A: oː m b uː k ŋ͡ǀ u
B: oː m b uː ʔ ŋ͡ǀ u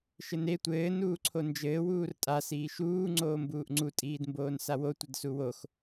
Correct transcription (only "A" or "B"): B